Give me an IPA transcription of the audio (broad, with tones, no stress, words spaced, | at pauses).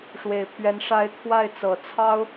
ʂwe˨˩ɪ̯pʰɥɛ˧˥n ʂa˧˥ɪ̯ t̪ʰwa˥˩ɪ̯ t͡sɤ˨˩t͡sʰɑ˥ʊ̯